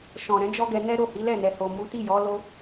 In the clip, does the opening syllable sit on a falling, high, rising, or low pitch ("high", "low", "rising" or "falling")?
low